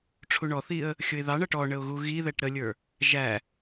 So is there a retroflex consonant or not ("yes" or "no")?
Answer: yes